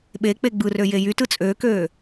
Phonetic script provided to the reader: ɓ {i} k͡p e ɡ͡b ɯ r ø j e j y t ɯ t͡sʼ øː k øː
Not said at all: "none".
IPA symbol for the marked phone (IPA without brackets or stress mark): e